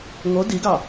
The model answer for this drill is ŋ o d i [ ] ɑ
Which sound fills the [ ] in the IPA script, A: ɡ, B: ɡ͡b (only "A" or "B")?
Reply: A